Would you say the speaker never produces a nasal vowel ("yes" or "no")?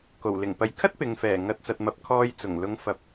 yes